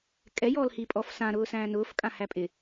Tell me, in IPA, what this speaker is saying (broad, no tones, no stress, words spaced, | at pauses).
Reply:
kʼɛ jɔːlhipʼɔf sã ɾʊːsæ̃ːnʊːf kʼãhæpʼɪ